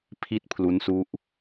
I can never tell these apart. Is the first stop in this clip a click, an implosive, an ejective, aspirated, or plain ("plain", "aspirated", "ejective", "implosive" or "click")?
aspirated